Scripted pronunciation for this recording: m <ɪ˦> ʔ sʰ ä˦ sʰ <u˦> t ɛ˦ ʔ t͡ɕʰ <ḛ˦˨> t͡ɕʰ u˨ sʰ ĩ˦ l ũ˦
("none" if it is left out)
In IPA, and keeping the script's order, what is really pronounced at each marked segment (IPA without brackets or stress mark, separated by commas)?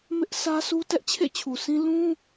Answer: ɪ˦, u˦, ḛ˦˨